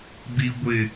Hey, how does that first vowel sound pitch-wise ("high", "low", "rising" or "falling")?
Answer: high